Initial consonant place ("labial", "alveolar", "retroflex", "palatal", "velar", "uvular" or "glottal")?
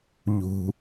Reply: palatal